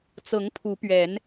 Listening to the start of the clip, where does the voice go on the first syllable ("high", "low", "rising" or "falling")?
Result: rising